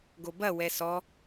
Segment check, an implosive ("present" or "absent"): absent